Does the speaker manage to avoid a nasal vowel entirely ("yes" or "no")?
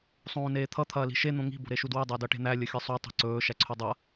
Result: no